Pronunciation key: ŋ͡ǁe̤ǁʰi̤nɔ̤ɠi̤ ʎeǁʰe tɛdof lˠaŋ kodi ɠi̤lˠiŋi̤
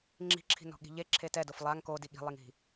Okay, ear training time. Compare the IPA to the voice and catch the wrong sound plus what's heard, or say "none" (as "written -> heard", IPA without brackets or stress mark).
e̤ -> i̤